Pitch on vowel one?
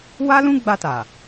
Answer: high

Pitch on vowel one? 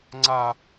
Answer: high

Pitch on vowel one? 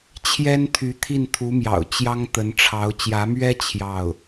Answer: high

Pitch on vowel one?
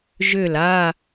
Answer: falling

